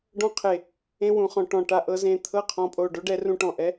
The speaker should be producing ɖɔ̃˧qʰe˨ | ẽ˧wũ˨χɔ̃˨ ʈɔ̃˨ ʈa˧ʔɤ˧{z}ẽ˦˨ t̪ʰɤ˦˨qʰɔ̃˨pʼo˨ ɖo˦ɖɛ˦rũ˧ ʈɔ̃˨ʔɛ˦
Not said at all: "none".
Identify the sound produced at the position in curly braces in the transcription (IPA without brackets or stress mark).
z